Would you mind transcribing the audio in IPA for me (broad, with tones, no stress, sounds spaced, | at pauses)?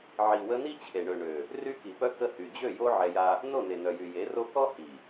ʕ i˨ w ə˧ n i˦ t͡ɕʰ e˨ ɳ ø˨ ɳ ø˨ | r y˦ k i˨ p œ˦ k ə˧ h y˨ d͡ʑ ø˦˨ j o˦ ʕ ɛ˧ j a˦ | n o˦˨ n e˨ n œ˨ j y˨ j e˨˦ r o˦ k ɔ˦ h i˨